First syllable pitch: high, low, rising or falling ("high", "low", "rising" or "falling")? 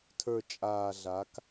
low